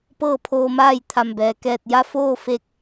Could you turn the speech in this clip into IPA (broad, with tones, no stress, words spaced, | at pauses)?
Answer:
pɤː˥˨pʰoː˧maː˥˨j t̪ʰa˧˩mbɛː˩ kɛː˧˩t̚ja˥˨ foː˥˨fe˧k̚